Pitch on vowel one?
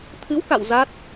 rising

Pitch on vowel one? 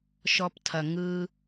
low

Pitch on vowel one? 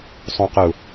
low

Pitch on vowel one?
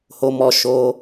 low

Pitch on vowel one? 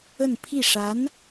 falling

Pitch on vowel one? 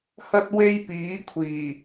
high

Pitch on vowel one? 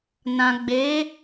low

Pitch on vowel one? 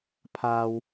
low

